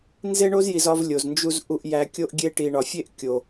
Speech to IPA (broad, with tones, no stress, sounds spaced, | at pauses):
n z e˦ ɳ o˦ z j i˨ z ɒ˦ v lʲ o˨ z n d͡ʒ u˦ z ʔ u˨ ʔ j æ˨ kʲ o˦ ʔ ɡʲ e˦ ʈ i˨ ɳ ɒ˨ fʲ e˦ ʔ kʲ o˨